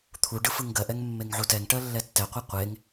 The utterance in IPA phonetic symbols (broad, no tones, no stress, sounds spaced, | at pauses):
t̪ʰ u ɖ ɯ f ɯ ŋ ɡ ɜ ʔ ɛ ŋ mː e ŋ ʕ u t ɛ ŋ ʈ ɜ lː ɛ tː ɛ qʷ ɜ qʷ e ŋ